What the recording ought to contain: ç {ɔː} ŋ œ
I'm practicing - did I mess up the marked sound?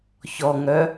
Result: yes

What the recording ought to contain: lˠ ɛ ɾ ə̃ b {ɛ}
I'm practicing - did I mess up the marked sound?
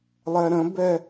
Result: no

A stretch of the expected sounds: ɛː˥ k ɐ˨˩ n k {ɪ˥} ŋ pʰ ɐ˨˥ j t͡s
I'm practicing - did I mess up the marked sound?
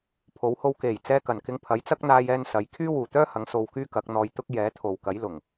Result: yes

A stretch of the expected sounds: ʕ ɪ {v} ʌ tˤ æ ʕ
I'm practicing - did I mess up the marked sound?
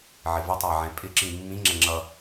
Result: no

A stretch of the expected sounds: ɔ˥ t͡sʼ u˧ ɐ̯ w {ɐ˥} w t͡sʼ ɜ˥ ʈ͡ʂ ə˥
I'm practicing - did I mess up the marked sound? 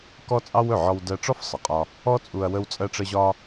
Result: yes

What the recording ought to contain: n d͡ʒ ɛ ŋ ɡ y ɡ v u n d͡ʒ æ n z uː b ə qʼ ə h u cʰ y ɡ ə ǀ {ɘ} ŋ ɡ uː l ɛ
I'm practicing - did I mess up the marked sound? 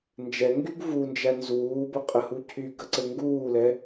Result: no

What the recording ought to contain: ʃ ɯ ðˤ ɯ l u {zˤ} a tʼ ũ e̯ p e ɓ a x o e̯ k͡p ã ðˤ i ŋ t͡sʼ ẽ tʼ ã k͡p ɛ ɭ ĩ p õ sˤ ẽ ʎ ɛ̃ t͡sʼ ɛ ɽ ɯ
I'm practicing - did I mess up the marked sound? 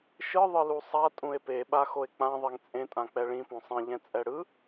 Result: yes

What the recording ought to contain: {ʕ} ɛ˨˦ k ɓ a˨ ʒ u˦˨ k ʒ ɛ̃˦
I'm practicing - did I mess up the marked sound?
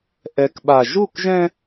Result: yes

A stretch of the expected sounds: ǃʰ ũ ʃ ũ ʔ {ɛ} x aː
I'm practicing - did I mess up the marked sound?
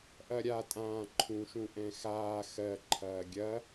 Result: yes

